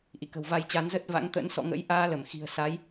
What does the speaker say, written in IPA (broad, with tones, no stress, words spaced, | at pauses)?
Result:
ʔḭ˧˨kə̤˨˩wva˧jt͡ɕa˨˦n zə˦˥t̚va̰˧˥ŋt̪ə̰˧˥n sɔ̰˧˨ŋə̰˧˥j ʔaː˧lə˧˩m xi̤˨˩ə̯sa˨˦j